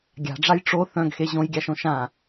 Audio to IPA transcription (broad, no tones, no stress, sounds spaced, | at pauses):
ɡʲ a̤ ɖ͡ʐ a j ʈ͡ʂ o θ œ̃ ɡ x e ʑ õ j ɡʲ a ʃ õ ʃ ã